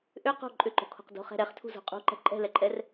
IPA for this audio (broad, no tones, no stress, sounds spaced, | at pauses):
ʔ ʏ q o̤ ǃʼ ʏ ǃ o̤ kʰ o̤ q d o̤ χ ɛ̤ ɾ ɛ χ tʰ ṳ z o̤ qʼ ṳ ǃ ɛ̤ ǃʼ ɛ̤ l ɛ ǃʼ ɛ r